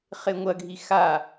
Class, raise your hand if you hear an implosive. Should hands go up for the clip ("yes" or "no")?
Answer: no